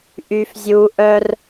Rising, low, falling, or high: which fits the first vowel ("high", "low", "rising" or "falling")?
low